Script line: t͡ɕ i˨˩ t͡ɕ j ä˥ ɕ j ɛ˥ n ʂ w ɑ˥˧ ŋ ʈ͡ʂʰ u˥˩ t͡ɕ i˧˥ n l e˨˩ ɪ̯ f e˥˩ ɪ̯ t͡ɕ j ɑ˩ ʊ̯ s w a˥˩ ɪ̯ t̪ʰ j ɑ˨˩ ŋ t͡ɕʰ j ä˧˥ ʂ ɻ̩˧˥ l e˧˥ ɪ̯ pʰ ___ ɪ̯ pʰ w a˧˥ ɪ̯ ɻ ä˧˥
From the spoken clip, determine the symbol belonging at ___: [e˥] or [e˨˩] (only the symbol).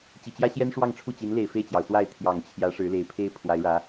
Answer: e˥